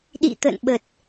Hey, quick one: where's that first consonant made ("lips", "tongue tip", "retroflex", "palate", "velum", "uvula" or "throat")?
tongue tip